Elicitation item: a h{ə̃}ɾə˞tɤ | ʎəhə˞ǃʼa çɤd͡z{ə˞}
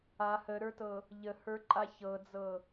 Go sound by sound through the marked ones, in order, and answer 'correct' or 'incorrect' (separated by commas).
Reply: incorrect, incorrect